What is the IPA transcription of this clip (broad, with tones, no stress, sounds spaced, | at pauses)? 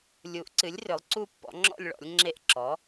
lʲ u˩˥ ʔ ǀ ɨ˩˥ lʲ r ʏ˩˥ lˠ ǀ u˥˨ pː ɔ̰˩˥ ŋ͡ǁ ɔ̰˥˨ lʲ ɭ ɔ̰˩˥ lʲ ŋ͡ǁ e˥˨ ʔ ǁ ɔ˩˥